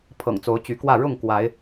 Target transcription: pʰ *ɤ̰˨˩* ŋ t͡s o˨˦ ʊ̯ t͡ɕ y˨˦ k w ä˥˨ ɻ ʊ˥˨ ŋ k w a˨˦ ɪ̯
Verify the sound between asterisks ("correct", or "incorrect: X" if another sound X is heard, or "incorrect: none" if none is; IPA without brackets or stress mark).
correct